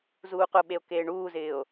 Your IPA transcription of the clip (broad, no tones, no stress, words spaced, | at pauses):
zuːqʊɓeo̯ keːɳuːzɪːo̯